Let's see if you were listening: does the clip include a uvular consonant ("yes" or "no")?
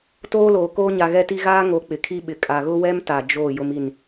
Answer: no